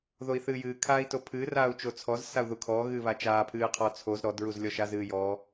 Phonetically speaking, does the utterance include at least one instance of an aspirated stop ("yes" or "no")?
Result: yes